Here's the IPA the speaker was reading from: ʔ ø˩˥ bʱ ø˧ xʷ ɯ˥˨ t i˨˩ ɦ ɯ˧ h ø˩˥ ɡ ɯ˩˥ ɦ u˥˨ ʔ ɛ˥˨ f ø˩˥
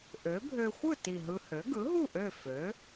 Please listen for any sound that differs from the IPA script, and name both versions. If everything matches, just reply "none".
ɛ˥˨ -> ø˥˨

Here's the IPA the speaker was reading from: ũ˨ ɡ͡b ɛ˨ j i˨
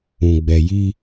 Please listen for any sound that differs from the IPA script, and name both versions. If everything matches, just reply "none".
i˨ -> i˦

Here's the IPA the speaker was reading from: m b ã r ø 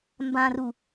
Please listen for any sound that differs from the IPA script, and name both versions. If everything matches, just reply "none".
ø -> u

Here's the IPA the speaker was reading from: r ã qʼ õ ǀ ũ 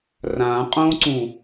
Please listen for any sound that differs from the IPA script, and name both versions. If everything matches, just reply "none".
none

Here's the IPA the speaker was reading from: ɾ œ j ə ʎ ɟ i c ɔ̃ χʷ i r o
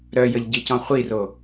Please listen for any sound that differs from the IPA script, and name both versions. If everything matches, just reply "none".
none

